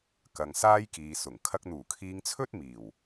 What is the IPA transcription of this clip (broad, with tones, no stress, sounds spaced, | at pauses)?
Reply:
k ɐ˨ ŋ s aː˥ j k iː˨ s ʊ˨˩ ŋ kʰ ɐ˧ k̚ n̪ uː˨˩ kʰ iː˧ ŋ t͡sʰ ɵ˥ t̚ m iː˨˩ w